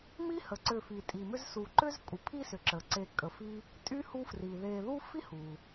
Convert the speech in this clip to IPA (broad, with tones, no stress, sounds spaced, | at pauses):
m i˥ h ə˩ ǀ ʏ˨ f i˩ tʼ i˩ m ʏ˦ z s u˨ ǃ ʏ˥ z kʼ u˩ pʰ i˦ s ʏ˩ ǁ ə˩ ǀ e˨ kʼ ə˨ f i˥ | tʼ y˥ h u˦ f r i˩ ð e˨ ð u˥ f i˥ h u˩